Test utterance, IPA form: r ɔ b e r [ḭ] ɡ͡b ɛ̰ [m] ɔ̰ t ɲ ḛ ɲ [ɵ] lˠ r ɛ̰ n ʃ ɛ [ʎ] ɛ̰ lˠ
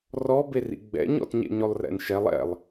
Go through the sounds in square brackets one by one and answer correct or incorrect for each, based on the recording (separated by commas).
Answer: correct, incorrect, correct, incorrect